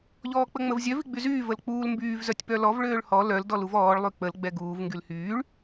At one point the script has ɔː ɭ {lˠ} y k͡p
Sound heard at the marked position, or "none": lˠ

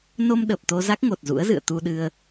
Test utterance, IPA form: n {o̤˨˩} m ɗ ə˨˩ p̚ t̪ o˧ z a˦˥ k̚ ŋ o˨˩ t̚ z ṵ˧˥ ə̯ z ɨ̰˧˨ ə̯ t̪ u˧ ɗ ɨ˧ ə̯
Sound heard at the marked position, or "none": o˧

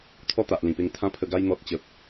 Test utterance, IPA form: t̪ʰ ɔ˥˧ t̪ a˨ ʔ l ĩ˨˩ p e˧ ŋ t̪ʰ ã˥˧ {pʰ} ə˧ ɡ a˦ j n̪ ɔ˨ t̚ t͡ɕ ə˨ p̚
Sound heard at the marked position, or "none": pʰ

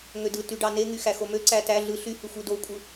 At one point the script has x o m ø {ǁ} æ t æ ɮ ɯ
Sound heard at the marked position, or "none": ǀ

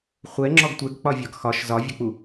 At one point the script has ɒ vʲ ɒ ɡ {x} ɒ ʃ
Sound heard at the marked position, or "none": x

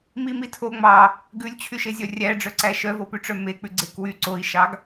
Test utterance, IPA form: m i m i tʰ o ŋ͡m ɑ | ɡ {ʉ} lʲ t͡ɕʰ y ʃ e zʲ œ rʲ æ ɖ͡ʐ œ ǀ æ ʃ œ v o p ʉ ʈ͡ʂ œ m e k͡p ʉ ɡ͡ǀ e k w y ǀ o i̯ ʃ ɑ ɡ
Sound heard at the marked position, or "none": ʉ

